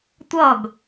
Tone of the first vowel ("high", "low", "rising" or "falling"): falling